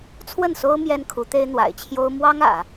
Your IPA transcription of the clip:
t͡sʰwə˥˩nso˥ʊ̯ mjɛ˥nkʰu˧˥t̪e˥ɪ̯ n̪wa̰˨˩ɪ̯t͡ɕʰjo˥ʊ̯ mwɑ˥ŋ ä̰˨˩˦

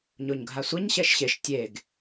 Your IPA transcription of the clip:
ɲoɲɡʱasʷɛɲ ɕɛʃɕeʃ tʲeɡ

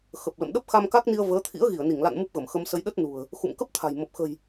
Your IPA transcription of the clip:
xə˨˩p̚lə̰˧˨m ɗə˦˥p̚xa˧mka˦˥k̚ni˧ə̯ vəː˨˦t̪ʰḭ˧˥ə̯ ɣi˧˩ə̯ni˧˩ŋla̰˧˨n mu˦˥p̚ɣə˧˩mxə˧msə˧j ɗə˦˥t̚ nṳ˨˩ə̯ | xṵ˧˨mkə˦˥p̚t̪ʰa̤˨˩j mə˨˩p̚xə̤˨˩j

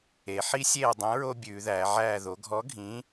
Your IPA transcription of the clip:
e˩˧ħi˦sʲeː˦˨ dˤĩ˨˥ɹo˦ bʲʉː˩˧ðæː˩˧ʕæː˦˨ ðo˩˧ɡʱɔ˨˥ ɡʱĩ˨˥

